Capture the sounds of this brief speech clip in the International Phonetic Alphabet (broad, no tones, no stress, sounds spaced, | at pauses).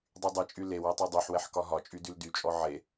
dˤ y dˤ ɛ t͡ʃʼ y l e w e tˤ ɛ dˤ y ħ w ɛ ħ k ɒ ɦ ɒ t͡ʃʼ y d y l d y t͡ʃʼ ɔ ʕ e